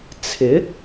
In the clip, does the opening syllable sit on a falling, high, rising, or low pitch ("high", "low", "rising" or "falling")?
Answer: rising